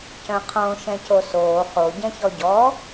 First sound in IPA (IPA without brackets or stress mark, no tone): c